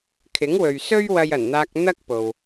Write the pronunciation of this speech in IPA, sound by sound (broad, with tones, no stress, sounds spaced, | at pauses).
kʰ ɪ˨˥ ŋ w ɵ˨ ɥ s ɵ˥ ɥ w ɐ˧ j ɐ˨˩ n n̪ aː˧ k̚ n̪ ɐ˥ k̚ p o˨ w